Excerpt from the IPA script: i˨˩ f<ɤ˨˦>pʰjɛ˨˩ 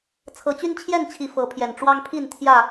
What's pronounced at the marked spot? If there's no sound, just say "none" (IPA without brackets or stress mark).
ɤ˨˦